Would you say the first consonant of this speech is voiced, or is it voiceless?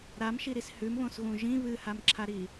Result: voiced